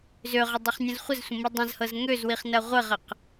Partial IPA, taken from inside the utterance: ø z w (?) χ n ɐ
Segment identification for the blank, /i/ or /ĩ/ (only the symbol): i